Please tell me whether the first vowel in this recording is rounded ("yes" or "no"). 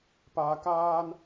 no